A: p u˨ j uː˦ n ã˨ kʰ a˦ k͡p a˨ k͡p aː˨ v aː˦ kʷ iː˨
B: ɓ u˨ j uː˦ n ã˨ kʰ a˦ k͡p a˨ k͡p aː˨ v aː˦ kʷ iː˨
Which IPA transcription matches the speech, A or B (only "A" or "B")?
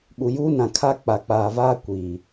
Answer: B